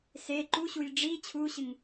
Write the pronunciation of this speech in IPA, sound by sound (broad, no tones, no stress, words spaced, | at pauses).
se ǃuɕuj ɖ͡ʐi t͡ɕʰuɕɨŋ